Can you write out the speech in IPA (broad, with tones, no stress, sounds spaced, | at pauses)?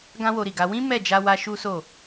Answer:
ɡ ã˦ w o˧ ɾ i˨ ɡ a˧ w ĩ˦ m ɛ˦˨ d͡ʒ a˧ w a˧ ʃ u˦ s o˦˨